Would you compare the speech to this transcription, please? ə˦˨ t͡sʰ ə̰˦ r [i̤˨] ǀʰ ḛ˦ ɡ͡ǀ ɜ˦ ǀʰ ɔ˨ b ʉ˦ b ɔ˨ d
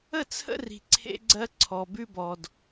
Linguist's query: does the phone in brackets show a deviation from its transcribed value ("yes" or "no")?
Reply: no